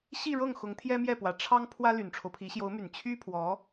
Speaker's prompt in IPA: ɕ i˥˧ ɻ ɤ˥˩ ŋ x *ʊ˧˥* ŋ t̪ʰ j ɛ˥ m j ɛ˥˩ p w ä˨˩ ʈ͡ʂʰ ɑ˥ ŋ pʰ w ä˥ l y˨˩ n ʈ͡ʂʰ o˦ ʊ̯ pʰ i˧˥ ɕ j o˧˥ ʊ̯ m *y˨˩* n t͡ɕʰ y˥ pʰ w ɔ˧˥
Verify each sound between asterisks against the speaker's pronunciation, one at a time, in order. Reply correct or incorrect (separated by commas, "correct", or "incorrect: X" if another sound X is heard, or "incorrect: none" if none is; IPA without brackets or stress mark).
correct, correct